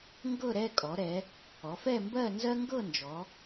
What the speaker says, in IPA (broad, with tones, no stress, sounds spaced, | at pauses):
ŋ ɡ ɤ˥˧ ɾ ɛ˥˧ kʼ ɔ˩˧ ɾ ɛ˩˧ | ɔ˩˧ f ɛ˥˧ m b ɜ˥˧ n z ɜ˥ ŋ ɡ ɤ˥˧ n d͡ʒ ɔ˩˧